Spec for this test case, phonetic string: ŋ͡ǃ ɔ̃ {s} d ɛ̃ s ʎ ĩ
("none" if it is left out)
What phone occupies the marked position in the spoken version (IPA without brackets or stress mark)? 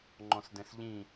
s